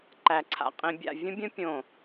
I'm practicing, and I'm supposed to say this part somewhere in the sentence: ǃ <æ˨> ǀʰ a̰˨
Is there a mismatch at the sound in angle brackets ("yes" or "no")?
no